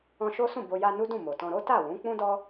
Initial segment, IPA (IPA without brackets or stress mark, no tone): ɔ̃